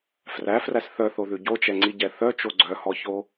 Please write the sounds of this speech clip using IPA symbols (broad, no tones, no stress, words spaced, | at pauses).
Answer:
fræfræs θœθoðʉ ɟot͡ʃɛŋ͡ǀiɟɛ θœt͡ʃo ɡ͡ǀœhɔço